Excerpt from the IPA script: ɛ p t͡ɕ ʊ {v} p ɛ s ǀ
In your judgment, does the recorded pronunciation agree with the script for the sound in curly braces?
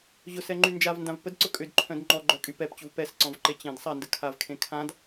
yes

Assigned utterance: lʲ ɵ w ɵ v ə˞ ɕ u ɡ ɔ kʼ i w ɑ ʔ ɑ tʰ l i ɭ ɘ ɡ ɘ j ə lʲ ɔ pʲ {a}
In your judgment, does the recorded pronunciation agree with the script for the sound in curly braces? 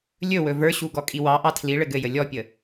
no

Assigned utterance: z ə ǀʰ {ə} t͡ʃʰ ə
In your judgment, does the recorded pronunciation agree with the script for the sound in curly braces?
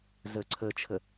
yes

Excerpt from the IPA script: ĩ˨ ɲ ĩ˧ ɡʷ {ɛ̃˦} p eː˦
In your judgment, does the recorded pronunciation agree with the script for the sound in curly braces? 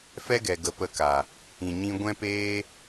yes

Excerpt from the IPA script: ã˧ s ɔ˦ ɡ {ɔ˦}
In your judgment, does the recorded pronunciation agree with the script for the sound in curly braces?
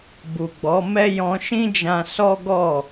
no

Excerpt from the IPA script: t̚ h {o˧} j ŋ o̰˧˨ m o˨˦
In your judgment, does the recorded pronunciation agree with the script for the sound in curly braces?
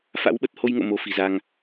yes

